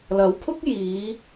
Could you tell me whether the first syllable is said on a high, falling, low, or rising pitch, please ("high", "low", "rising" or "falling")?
rising